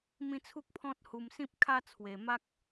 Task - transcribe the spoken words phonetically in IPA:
mĩ˦t͡sʰu˦k̚pʰɔ̃˦t̚ hu˧msĩ˦p̚kʰa˦ t͡sʰwe˧ ma˦k̚

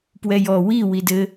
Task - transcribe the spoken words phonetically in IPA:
pwɛjɔ wi widɘ

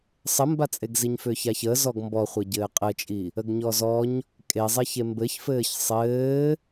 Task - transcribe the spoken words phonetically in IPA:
sˤəmbat͡sʼeɡziɲ fʏːçaçəː zɔɡmbɔχʷe ɟɘːqʼɘt͡ʃʼi | əɡɲɔzɔɲ | kʼezˤeçe mbɘçfɘːç sˤɘː

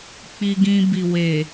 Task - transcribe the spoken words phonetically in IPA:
k͡pi˧ɡĩ˧bi˨ we˨

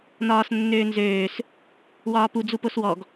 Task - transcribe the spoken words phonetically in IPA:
nɒːsnːøːnzøːs | wɒːpu d͡zuposwɔɡ

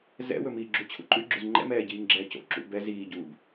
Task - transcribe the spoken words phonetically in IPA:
zɛ̰wɵmiːɡ͡ǁu t͡ɕʰṵǃʼʉɡ͡ǁʉz ŋ͡ǃɛ̰mɛːɟiːŋɡ͡ǁɛː co̰ǁṵ bɛ ziːɟuːb

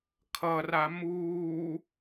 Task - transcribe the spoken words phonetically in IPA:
kʰʌra muː

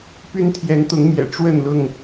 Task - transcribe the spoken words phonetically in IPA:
py˦nt̪ʰjɛ˨˦nt̪ʊ˨˦ŋmjɛ̰˨˩ ʈ͡ʂwə˥˨nlʊ˥˨ŋ

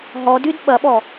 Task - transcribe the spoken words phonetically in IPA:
ɦɔdyd ɓɐɓɔ

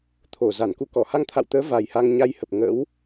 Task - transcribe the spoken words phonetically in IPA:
t̪ʰo˧˩za˧˩nku˧kɔ˧˩ ha˧ŋt̪ʰa̰˧˨wt̪əː˨˦ va˨˩jha˧ŋɲa˧jhə˨˩p̚ ŋə̰˧˥w

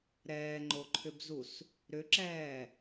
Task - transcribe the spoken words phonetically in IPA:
ɾɛːŋ͡ǃoǃʰʏbzus | ɾʏǁɛː

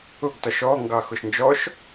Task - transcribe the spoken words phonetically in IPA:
ʊɡtɒʃ ɔŋɡɑ xʊʃnd͡ʒɔʃ

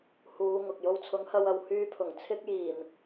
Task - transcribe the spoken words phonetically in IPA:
huː˨˧ ŋʊ˨k̚jo˥w t͡sʰʊ˨˥ŋhɐ˧wɐ˨w hyː˧pʰʊ˨˩ŋ t͡sʰɪ˥k̚jiː˨˩m

